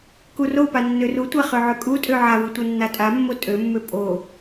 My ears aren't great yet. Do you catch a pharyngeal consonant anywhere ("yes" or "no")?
yes